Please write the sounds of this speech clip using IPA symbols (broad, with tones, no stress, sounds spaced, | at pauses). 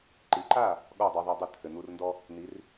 ǃ i˩˥ ǃ a˥˩ | ɠ ɔ˥˩ dˤ ɛ˧ ðˤ a˧ dˤ ɘ˥˩ t̪ʰ ɘ˩ n̪ u˧ r n d ɔ˥ | n̪ i˩˥ r